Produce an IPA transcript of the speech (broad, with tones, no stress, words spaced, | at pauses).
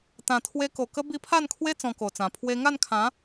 t̪ã˨˩t̪ʰwe˧ko˨˩ kə˦ bi˧pʰa˥˧nkʰwe˦ t͡sɔ̃˧ko˨˩t͡sã˨˩ pʰwe˧ŋa˥˧nkʰã˨˦